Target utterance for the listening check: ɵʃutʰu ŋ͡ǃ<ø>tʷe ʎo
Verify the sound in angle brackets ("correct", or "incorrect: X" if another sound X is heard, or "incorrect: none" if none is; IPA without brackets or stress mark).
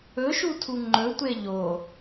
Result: incorrect: ɵ